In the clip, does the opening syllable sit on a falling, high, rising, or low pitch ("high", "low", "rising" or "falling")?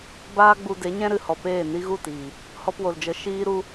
high